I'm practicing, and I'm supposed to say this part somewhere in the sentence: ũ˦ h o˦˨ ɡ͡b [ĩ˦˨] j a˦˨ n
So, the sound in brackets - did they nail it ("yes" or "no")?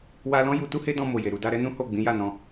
no